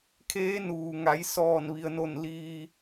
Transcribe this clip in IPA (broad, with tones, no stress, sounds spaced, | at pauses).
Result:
kʰ eː˧˥ n uː˩ ŋ a˩˧ j s ɔː˧˩ n ʋ i˩ ə̯ n o˧˩ n l iː˩